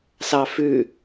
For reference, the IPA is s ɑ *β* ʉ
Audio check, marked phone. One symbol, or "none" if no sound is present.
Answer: f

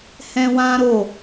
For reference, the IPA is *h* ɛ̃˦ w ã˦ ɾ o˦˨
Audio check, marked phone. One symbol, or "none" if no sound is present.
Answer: h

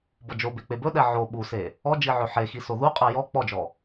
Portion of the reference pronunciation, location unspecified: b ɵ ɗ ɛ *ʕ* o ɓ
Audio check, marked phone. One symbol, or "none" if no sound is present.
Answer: ʕ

